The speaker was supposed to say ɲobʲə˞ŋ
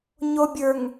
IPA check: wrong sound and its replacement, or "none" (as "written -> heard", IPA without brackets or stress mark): none